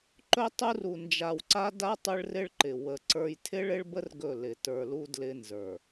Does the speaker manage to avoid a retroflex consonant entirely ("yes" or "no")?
no